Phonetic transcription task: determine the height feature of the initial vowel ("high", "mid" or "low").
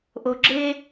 mid